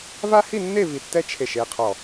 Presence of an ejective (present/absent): absent